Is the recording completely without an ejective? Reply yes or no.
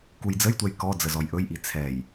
yes